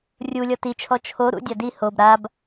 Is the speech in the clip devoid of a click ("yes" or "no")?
yes